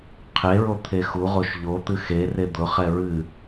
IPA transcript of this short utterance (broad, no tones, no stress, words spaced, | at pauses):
qʰeɹo t̪ʰexuʁoʃ ʎo t̪ɨxere d̪ʊχɛ ɹɨ